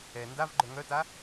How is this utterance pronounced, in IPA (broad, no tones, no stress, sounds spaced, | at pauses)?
ɛ n d a v ɡ͡ǃ œ ŋ œ t a